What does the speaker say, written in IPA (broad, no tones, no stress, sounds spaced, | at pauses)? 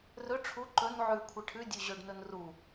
r ɵ ʈ͡ʂʰ u ǃ ɵ n ʕ ʉ kʷʰ e ʈʰ ʉ dʲ ʉ ʑ ɵ ɖ n ɵ n r u